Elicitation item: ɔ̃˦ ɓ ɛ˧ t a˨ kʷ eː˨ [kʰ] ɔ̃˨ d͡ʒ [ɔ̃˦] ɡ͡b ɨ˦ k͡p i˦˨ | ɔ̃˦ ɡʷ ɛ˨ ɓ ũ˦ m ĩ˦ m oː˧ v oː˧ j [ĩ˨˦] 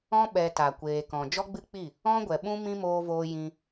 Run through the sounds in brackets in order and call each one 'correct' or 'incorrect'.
incorrect: k, incorrect: ɔ˦, incorrect: ĩ˧

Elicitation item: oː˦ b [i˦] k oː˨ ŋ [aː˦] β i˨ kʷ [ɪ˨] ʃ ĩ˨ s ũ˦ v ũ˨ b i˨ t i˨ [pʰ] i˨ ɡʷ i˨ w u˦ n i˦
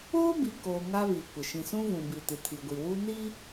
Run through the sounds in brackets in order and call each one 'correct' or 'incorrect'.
incorrect: i˨, incorrect: a˦, correct, incorrect: tʰ

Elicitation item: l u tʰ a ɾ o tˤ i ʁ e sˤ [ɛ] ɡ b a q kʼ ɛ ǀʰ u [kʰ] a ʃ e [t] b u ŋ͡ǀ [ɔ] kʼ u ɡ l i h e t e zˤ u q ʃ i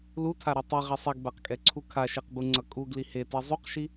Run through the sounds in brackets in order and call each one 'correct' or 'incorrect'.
correct, correct, incorrect: q, incorrect: ʌ

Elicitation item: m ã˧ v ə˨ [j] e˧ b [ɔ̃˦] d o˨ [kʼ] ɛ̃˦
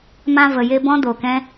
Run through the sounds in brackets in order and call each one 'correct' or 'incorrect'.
correct, correct, incorrect: k

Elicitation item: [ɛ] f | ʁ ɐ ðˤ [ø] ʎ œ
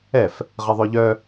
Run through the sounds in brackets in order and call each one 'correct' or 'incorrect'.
correct, correct

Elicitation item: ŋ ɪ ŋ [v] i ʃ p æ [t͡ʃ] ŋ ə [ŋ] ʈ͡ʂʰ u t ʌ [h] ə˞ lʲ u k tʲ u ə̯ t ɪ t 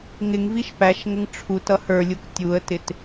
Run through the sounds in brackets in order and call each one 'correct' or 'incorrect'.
correct, incorrect: ʃ, correct, correct

